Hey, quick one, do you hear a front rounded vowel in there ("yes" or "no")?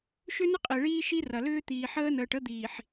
yes